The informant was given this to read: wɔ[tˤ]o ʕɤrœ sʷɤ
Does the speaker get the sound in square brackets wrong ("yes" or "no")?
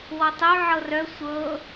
no